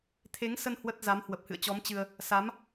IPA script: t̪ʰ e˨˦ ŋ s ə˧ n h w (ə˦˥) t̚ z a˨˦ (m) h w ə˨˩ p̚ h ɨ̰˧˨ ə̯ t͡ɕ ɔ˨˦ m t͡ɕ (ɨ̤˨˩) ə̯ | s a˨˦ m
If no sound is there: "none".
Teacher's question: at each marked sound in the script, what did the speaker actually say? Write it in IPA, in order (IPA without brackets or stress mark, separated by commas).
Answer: ə˦˥, m, ɨ˧